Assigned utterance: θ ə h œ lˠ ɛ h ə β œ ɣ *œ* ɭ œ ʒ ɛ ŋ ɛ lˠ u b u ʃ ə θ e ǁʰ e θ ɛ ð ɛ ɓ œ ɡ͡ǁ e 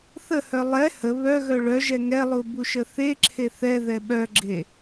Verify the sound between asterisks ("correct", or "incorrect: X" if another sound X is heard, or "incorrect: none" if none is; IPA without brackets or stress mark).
correct